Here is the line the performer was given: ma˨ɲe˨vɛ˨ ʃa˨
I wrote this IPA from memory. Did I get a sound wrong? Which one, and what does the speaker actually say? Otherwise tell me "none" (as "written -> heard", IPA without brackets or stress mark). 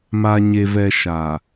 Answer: none